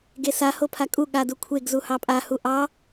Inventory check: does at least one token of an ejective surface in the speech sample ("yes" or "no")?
yes